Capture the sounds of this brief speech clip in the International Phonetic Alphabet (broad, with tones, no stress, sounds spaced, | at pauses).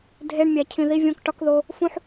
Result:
dʱ e˨ ɳ mʲ æ˨ cʰ ĩ˨ ð i˦ vʲ õ˦ k ʈ ɒ˦ k ð o˦ | f ũ˦ ħ